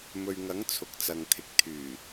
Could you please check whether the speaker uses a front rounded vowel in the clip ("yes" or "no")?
yes